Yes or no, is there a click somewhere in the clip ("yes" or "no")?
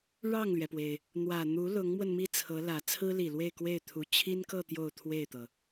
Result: no